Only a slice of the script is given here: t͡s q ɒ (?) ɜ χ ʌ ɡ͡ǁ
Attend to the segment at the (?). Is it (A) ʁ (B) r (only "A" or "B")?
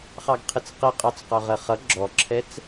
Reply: A